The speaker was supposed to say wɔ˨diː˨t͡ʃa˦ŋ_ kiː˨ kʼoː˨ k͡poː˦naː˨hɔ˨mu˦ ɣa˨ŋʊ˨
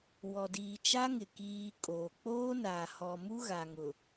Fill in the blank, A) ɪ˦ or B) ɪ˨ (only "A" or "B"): B